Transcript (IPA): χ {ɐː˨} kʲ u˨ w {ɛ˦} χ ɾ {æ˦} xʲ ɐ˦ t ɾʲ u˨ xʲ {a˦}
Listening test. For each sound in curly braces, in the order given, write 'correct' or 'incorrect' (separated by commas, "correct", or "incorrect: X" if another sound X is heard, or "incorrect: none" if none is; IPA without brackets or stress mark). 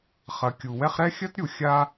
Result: incorrect: ɐ˨, correct, incorrect: ɛ˦, correct